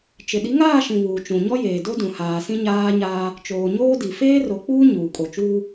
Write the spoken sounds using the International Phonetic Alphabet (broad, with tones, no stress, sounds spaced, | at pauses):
t͡ʃ ɪ˨ ɗ i˨˦ ŋ aː˦˨ ʃ ĩ˨ β uː˨ t͡ʃ ũ˨ ɲ ɔ˦ j eː˨ d o˦ d ũ˨ h aː˨ s ĩ˦ ɲ aː˦ ɲ aː˦ | t͡ʃ oː˨ ɲ oː˦ d i˨ f eː˦ r o˨ k͡p uː˦ ɲ uː˨ kʼ o˨ t͡ʃ uː˦